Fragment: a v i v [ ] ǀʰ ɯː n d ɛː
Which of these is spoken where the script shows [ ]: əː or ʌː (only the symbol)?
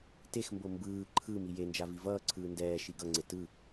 ʌː